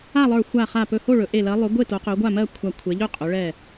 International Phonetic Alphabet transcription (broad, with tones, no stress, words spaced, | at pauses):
a˥˨lˠə˞˧˩ xʷa˧˩χa˧˩pɵ˧˩ ho˥˨ɭɵ˨˦ ʔe˧˩lɜ˨˦lˠɵ˨˦ ɡʷe˥˨to˨˦ qɵ˨˦ɡʷa˥˨ mɜ˥˨kʷʰa˧˩kʷʰe˨˦ʎɵ˥˨ qʼɵ˨˦ ɭɛ˧˩